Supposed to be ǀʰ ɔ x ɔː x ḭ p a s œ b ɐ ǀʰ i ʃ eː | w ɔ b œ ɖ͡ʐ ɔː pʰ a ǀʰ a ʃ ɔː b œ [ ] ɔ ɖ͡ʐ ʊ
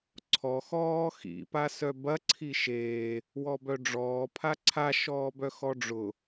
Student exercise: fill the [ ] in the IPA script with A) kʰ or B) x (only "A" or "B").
B